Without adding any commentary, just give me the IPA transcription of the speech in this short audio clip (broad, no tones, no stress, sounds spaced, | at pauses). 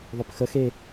ðˤ ø p x ə x e